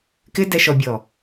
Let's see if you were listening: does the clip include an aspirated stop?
no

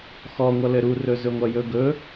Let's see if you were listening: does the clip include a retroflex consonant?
no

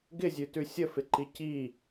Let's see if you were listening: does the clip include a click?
yes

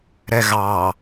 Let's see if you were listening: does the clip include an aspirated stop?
no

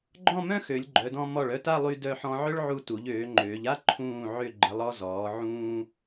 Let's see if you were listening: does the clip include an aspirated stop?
yes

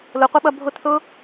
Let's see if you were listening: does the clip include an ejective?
no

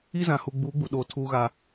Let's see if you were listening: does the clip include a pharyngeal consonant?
no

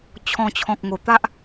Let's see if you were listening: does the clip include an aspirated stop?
yes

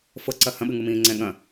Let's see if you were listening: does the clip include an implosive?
yes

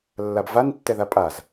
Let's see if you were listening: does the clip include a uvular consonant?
no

